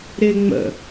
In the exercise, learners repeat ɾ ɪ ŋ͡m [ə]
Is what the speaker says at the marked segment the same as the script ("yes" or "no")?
no